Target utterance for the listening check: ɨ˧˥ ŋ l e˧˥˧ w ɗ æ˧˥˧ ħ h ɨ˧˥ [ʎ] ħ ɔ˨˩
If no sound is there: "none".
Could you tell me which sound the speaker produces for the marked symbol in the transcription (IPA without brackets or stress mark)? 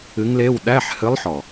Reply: lˠ